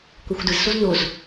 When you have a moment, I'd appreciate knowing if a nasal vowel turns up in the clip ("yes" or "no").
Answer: no